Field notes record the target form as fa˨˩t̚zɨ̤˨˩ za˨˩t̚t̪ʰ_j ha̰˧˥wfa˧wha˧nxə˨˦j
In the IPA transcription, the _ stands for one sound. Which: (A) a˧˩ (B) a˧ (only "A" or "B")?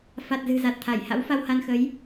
A